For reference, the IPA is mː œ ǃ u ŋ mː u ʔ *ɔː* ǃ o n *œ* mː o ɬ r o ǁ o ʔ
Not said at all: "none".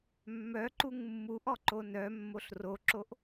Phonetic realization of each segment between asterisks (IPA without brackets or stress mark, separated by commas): ɔ, œ